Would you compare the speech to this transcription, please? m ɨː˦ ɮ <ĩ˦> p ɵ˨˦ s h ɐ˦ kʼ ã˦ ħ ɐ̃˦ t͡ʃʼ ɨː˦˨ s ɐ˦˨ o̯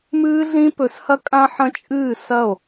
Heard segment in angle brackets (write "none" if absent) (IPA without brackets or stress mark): ĩ˦